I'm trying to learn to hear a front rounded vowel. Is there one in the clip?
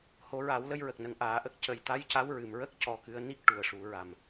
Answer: no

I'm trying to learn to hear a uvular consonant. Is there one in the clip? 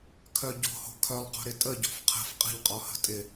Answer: yes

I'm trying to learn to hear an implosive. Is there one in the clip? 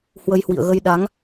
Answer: yes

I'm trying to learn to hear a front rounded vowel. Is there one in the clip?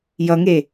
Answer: no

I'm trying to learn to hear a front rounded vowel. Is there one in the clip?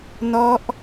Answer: no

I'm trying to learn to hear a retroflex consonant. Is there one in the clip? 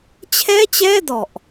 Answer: no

